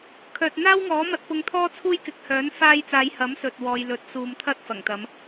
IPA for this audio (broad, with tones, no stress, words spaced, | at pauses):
kʰœː˨t̚n̪aː˥wŋɔː˨˥ mɐ˧t̚pʊ˧ŋt̪ʰɔː˥ t͡sʰuː˥jkɪ˨˥k̚ hœː˨˥n faː˧jt͡saː˨˧j hɐ˨˥msɵ˨t̚ wɔː˨j lɵ˨˥t̚suː˨mt̪ʰɐ˥t̚ fɐ˨˩ŋt̪ɐ˨˧m